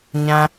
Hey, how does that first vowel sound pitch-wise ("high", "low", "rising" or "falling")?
high